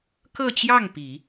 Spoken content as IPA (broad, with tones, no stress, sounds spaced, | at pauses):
k ɤ˥˧ t͡ɕ j ɑ˥˩ ŋ p i˨˩˦